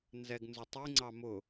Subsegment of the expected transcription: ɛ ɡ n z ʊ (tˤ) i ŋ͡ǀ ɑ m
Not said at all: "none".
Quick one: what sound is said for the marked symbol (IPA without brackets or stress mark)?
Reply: tˤ